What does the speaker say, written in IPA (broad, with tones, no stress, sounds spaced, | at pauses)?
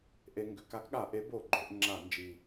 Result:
ʔ e˧ ŋ ɡ ʏ˩˧ k a˨˥ k ɠ a˧˩˧ ʔ e˨˥ b o˧˩˧ ɡ͡ǃ o˩˧ ʔ ŋ͡ǁ a˧˩˧ n d͡ʒ i˨˩